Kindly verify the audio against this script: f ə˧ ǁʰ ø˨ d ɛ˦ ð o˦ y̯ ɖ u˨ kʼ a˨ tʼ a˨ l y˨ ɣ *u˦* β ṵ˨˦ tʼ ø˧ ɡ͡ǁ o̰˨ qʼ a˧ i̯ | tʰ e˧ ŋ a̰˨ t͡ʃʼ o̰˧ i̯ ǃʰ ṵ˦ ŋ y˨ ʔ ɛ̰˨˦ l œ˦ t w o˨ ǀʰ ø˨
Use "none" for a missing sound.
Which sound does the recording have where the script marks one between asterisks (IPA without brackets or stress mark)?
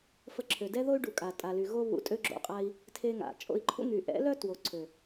o˦